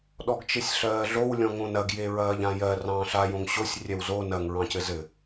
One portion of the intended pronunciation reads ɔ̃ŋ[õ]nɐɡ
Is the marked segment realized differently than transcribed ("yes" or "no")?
no